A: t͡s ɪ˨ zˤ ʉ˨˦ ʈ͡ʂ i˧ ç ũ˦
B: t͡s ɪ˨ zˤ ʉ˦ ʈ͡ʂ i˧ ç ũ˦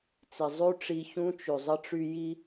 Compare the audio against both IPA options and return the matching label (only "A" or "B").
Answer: B